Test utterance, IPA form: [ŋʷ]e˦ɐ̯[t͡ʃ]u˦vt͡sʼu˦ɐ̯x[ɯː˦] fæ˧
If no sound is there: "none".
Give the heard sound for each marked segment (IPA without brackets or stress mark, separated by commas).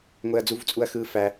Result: ŋʷ, d͡z, ɯː˦